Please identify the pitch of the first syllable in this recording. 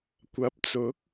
rising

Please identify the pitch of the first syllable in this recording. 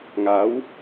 rising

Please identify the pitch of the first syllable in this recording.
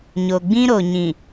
low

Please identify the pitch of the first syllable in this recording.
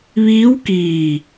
rising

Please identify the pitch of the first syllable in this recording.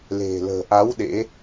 low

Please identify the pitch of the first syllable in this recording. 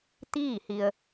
falling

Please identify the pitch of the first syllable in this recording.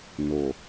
low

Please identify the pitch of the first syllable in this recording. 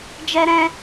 high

